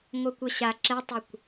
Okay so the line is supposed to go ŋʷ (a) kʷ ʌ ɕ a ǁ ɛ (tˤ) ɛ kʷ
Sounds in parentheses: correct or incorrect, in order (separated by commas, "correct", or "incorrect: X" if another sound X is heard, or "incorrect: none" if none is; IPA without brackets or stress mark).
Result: incorrect: ʌ, correct